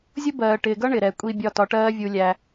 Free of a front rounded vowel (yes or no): yes